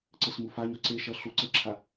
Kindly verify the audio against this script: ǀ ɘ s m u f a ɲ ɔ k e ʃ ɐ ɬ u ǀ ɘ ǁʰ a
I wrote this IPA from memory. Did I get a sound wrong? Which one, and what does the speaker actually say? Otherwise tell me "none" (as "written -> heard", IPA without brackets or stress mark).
k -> ǀ